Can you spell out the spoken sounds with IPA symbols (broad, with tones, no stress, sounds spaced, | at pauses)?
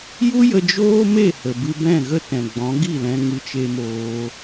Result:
j u˦ j ə˧ d͡ʒ oː˦ m e˦˨ h ə˨ b ɨ˧ b ɛ̃˦˨ ɣ ə˦ t ɛ̃˨ ɡ͡b ɔ̃˨˦ ɡ i˦˨ l ɛ̃˧ ŋ ɨ˧ t͡ʃ e˧ m oː˧